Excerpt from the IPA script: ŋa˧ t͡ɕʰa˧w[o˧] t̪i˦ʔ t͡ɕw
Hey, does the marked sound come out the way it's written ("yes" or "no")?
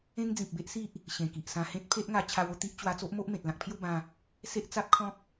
yes